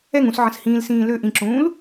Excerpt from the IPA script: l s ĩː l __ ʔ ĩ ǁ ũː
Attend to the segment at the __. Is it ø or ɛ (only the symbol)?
ø